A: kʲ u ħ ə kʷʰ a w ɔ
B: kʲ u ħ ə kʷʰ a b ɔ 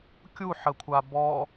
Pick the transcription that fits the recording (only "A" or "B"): B